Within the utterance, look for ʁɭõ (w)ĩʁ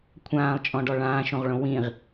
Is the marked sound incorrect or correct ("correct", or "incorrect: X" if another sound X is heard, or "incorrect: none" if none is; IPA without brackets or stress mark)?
correct